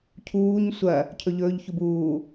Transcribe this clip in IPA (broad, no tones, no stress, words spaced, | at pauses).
cʰuːɲ sʷɐ | cʰɵʎɵːʎ çubuː